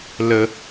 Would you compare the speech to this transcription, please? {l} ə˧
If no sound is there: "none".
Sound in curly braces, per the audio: l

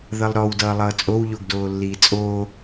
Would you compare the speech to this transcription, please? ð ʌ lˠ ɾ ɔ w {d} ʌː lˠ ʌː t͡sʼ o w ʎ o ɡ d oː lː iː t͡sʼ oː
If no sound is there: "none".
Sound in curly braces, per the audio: d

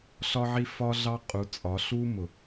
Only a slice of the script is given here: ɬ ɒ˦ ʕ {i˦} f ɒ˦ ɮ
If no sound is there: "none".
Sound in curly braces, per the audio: i˦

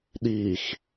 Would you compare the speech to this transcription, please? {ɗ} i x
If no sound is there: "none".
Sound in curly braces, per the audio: ɗ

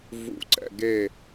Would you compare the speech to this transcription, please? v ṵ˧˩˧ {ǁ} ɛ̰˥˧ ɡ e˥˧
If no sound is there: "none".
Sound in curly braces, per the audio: ǀ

